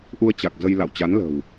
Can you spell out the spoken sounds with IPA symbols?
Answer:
ʔ u˧ ə̯ t͡ɕ a˨˩ k̚ z ə˧ j l a̰˧˨ w t͡ɕ a˨˦ n l ə̤˨˩ w

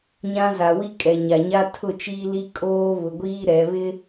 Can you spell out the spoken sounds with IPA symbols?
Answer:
ɲ ã˦ z a˨ w i˦ kʼ ɛ˨ ɲ a˨ ɲ a˦ tʰ ʊ˦˨ t͡ʃ iː˦ l i˦ kʼ oː˦ β ʊ˨ ɡʷ iː˦ ɾ ɛ˨˦ β ɪ˦

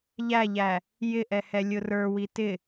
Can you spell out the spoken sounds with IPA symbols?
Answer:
ʎ æ ʎ æ | j ɪ ʔ ɛ h ɛ lʲ ʊ r ə˞ w i t ɪ

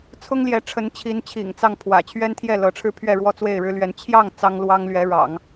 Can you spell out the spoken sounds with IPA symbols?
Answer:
t͡sʰ ʊ˥ ŋ l j ɛ˧˥ ʈ͡ʂʰ ə˧˥ n t͡ɕʰ i˧˥ n t͡ɕʰ ḭ˨˩ ŋ t͡s ɑ˥˩ ŋ pʰ w ä̰˨˩ t͡ɕʰ ɥ ɛ˥ n t̪ʰ j ɛ˥˩ l ɤ˧˥ ʈ͡ʂʰ ɻ̩˥ pʰ ɥ ɛ˥˩ ɻ w ɔ˥ t͡s w e˥˩ ɪ̯ ɻ ɻ̩˥ l ɥ ɛ˧˥ n t͡ɕʰ j ɑ˥˩ ŋ t͡s ɑ˥ ŋ l w ɑ˥ ŋ l ɥ ɛ˧˥ ɻ ɑ̰˨˩˦ ŋ

